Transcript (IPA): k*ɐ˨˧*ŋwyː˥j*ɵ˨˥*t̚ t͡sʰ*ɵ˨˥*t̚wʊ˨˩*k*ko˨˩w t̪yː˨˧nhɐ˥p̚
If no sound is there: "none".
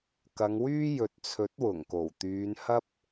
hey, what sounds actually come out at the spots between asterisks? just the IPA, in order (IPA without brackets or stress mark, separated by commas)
ɐ˨˧, ɵ˨, ɵ˨˥, ŋ